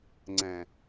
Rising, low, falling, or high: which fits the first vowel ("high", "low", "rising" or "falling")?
low